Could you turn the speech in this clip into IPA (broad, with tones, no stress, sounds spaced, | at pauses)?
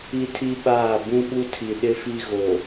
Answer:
i˦ tʰ i˦ ɓ aː˦˨ b ũ˦ ɓ u˦ tʰ i˨ ɗ ɪ˦ f i˦ ɣ o˨